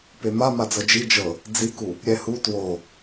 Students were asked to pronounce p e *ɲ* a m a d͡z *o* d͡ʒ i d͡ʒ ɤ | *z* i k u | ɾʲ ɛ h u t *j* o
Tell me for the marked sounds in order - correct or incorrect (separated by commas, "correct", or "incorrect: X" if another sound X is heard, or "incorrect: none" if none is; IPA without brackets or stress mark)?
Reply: incorrect: m, incorrect: ɤ, incorrect: d͡z, incorrect: w